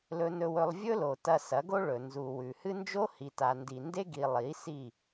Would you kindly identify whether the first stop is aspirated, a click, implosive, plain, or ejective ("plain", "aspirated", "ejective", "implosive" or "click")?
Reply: plain